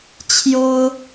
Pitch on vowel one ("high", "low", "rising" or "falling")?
high